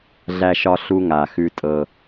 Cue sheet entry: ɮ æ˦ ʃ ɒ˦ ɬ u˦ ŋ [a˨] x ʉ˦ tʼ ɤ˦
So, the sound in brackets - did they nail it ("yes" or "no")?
yes